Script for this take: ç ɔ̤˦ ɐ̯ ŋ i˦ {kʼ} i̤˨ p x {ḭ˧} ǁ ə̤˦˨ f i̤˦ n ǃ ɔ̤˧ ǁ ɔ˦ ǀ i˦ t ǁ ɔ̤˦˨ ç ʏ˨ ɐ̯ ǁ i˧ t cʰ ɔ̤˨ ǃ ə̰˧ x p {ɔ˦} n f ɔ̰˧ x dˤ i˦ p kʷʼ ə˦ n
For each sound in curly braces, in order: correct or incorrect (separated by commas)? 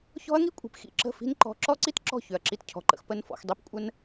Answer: incorrect, correct, incorrect